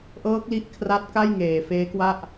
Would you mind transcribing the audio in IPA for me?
ʔ ɤː˦˥ k̚ l i˦˥ ʔ kʰ r a˦˥ t̚ k a˥˩ j ŋ eː˨˩ f eː˦˥ k w a˥˩ ʔ

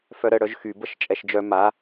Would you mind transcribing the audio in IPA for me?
f œ ɾ ə ɽ œ ʒ x y b ə ʃ t͡ʃʼ ɛ ʃ d͡ʒ œ m a

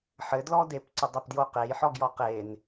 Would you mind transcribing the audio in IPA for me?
ħ ɘ d l ɔ d e p ǀ ə dˤ e p d j o q e j ħ ɔ ɡ j ɔ q e n

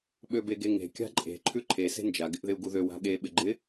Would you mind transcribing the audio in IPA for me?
ɓ ø b e ɡ e ŋ e̤ kʲ a̤ ǃʼ e̤ ǃʰ ʉ ǃʰ e s e̤ n d͡ʒ a ɡ ɪ ʔ ð ɪ u̯ ɡ u ð ø w a̤ ɠ e ɓ ɪ ɡ͡ǃ ɪ

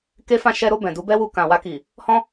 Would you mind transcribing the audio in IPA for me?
k e˧ f ã˧ ʃ ɛ˧ ɾ o˧ b ɛ̃˨ d u˧ b ɛ˦ w u˧ k ã˨ w a˧ k i˨ | h ɔ̃˦

